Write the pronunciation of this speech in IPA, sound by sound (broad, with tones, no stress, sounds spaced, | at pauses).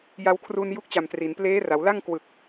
j a˧ w kʰ r u˧ n j u˦˥ k̚ t͡ɕ a˨˩ m t r i˩˦ n p l eː˦˥ r a˩˦ w l a˥˩ ŋ k w ɯ˨˩ k̚